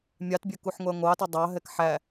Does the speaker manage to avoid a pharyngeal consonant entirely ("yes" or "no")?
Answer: no